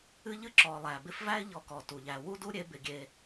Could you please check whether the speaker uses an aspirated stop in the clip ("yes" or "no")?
no